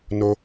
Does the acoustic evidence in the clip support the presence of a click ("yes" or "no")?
no